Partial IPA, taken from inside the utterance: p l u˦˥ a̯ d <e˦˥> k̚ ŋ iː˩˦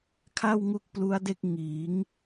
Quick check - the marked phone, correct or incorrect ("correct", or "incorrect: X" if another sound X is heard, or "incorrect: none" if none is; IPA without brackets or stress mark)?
incorrect: e˥˩